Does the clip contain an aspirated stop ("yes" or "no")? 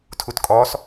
yes